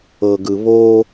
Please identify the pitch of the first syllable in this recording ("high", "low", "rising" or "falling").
low